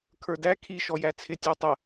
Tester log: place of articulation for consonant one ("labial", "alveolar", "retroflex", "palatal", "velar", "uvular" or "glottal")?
velar